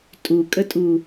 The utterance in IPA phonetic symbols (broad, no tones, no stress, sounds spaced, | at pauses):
tʼ u kʼ ə tʼ u